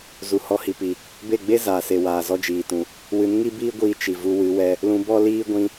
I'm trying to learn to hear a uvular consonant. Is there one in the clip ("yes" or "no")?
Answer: no